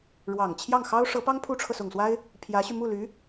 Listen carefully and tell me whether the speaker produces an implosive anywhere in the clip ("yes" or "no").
no